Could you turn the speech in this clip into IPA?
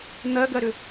n̪ ɜ ɡ ɜ ɾ ʏ

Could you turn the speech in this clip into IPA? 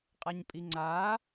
qʼ a ɲ pʼ i ŋ͡ǀ a

